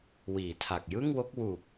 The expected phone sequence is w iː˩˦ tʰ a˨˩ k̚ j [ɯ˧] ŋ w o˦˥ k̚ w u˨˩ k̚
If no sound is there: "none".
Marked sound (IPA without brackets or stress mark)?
ɯ˥˩